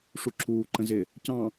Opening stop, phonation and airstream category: click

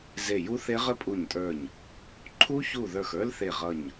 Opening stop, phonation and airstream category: ejective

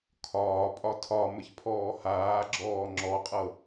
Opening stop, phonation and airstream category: aspirated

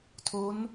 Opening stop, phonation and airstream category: aspirated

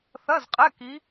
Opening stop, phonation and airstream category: ejective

